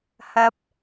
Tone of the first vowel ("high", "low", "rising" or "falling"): high